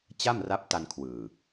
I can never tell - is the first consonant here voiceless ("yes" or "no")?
yes